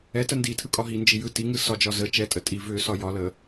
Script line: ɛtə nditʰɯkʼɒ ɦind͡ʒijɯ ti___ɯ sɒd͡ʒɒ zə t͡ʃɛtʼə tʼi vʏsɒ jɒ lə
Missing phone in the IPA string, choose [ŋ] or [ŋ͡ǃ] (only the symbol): ŋ